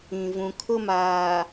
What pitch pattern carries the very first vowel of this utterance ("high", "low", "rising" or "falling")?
low